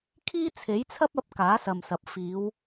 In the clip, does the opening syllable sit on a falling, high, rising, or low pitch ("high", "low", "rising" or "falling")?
high